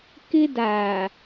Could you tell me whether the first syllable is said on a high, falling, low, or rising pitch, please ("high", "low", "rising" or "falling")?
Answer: high